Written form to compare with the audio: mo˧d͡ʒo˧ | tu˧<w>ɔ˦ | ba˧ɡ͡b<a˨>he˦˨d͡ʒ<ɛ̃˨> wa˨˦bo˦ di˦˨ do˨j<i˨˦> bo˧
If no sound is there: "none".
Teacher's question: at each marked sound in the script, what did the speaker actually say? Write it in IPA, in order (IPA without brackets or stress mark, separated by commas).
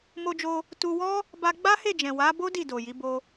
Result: w, a˦, ɛ̃˨, i˨˦